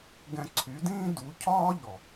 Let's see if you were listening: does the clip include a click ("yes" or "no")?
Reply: yes